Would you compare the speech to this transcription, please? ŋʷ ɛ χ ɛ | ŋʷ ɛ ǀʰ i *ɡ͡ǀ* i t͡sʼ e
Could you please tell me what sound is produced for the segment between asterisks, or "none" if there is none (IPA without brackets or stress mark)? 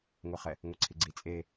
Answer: ɡ͡ǀ